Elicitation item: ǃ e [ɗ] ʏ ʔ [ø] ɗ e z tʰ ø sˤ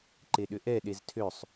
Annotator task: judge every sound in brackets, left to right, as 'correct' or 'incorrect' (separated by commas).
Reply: correct, incorrect